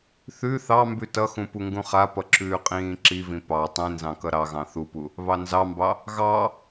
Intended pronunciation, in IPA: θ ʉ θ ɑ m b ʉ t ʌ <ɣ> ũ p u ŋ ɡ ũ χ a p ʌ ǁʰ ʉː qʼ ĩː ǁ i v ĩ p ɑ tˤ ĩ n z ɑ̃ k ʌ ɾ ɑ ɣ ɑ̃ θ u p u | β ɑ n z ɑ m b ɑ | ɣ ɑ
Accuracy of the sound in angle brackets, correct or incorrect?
incorrect